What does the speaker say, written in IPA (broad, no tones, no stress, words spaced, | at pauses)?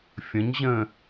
fʲə̃ɲ ʑə̃